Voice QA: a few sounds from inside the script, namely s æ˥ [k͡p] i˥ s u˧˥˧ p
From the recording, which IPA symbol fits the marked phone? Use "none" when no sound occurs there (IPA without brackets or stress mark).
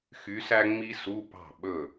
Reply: ŋ͡m